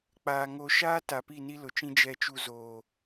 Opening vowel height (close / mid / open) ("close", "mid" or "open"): open